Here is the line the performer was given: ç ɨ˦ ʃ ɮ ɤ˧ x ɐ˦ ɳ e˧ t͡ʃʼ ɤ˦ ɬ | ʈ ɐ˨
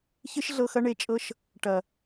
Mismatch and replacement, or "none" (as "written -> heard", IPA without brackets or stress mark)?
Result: ɬ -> ʃ